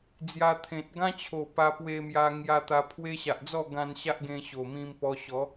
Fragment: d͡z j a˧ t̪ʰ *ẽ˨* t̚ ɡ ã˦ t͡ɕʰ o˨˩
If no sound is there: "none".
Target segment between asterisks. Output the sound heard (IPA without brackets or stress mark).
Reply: ẽ˨